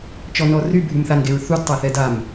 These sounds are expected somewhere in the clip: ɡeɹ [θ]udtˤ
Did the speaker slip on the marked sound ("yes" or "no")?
no